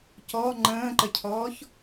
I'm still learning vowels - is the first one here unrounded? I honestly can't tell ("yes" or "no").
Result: no